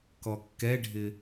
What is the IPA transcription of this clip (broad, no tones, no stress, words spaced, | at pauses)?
kɔkːɛɖʱɪ